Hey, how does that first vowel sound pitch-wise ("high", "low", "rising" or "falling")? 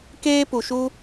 high